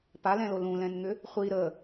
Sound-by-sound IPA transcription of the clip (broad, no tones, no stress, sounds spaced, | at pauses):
p a l ɛ̃ l o l ũ l ɛ̃ n ŋ ʏ | χʷ i ɾ ə